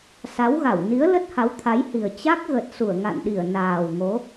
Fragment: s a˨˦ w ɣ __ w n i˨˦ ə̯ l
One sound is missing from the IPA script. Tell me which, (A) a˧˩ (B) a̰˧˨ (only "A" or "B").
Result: A